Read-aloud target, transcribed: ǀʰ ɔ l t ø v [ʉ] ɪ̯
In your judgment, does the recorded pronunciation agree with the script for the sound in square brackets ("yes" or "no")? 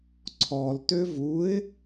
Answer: no